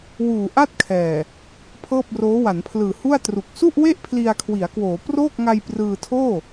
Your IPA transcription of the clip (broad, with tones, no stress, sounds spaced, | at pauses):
w uː˨˩ ʔ a˥˩ t̚ kʰ ɛː˨˩ | pʰ ɤː˥˩ p̚ r oː˦˥ w a˩˦ n pʰ l ɯː˨˩ h u˥˩ a̯ t r u˨˩ k̚ s u˥˩ ʔ w e˥˩ ʔ pʰ l i˧ a̯ kʰ w i˩˦ a̯ k w oː˩˦ p r oː˥˩ k̚ ŋ a˧ j p r ɯː˧ tʰ oː˥˩